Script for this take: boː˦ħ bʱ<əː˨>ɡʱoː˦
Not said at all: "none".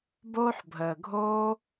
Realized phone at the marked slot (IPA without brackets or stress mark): əː˨